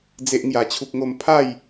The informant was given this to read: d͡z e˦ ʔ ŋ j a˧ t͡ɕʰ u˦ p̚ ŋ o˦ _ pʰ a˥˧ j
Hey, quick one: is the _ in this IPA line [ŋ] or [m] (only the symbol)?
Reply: m